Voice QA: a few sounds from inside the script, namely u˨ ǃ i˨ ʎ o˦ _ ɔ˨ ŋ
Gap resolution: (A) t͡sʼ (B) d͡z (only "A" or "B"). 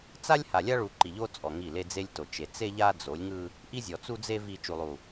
A